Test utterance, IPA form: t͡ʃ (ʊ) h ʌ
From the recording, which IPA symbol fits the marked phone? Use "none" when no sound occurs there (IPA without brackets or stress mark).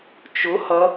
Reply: ʊ